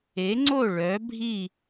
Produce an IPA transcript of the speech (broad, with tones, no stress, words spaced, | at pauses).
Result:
e˨˦ŋ͡ǀo˦˨ ɭœ˨˦ bʱi˦˨